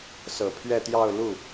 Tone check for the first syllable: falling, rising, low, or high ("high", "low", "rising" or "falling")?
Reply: low